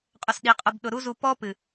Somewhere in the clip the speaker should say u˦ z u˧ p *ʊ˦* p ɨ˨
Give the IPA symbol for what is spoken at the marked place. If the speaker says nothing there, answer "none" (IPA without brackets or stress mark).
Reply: ɔ˦